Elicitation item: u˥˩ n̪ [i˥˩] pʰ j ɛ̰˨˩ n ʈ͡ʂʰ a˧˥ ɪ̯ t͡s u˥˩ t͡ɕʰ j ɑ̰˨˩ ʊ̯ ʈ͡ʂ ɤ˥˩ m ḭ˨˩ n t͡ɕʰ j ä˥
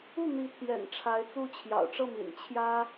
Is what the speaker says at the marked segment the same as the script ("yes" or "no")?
no